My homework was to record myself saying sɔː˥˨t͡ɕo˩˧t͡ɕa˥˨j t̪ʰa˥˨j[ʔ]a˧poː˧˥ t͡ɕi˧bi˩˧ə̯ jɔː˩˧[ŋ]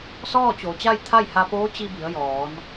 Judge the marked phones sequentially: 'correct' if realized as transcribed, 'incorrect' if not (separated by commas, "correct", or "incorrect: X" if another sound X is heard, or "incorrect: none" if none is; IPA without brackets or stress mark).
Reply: incorrect: h, incorrect: n